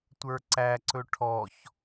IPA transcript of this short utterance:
tʷə˞ǀæǀɵ ʈʰɔç

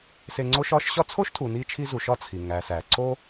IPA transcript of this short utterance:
se˦ŋ͡ǀo˥ʃɒ˥ʃ ɕɒ˥ t͡sʰo˥ʃtʰu˨ ni˦t͡ʃʰi˦zu˨ʃɒ˦ t͡sʰi˩ ŋæ˨sæ˩ ǀo˥

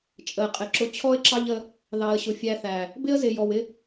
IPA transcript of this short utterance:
t͡ʃʼə˨ɪ̯qʼɪ˨ǁʊ˧ t͡ɕʰɔ˦ɪ̯ǁɑ˦ʎə˧ | ðɑ˨ə̯ɕʊ˨ fʲæ˧θæ˨ | bɪ˦ə̯zɪ˨ jɔ˨wɪ˦

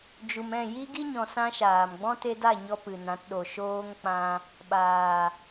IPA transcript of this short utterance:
d͡ʒu˨m ɛ̃˦˨ji˦ɡi˦ɲɔ̃˨ sã˦ʃaː˨m ɡ͡bɔ̃˦te˧da˦˨ɲɔ˧ pɨ˨nã˨˦tɗo˨ ʃoː˧ŋ k͡pã˧ | ɓaː˨

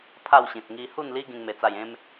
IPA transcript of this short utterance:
pʰa˥˧wɕĩ˨t̚ ŋi˧hu˥˧nli˦ ɡĩ˦ŋme˧t͡sa˥˧j ẽ˦m

